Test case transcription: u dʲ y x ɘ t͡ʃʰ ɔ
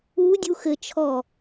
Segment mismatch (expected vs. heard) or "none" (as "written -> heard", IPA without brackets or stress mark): y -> u